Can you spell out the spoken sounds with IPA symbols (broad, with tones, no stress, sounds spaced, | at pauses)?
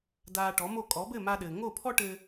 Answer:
d aː˧ ʈ ɔ˩˥ m o˥˩ kʼ ɔ˩˥ b ɘː˥˩ m a˧ ɗ ɘː˩ ŋ o˥˩ pʰ ɔ˥ ʈ ɘ˧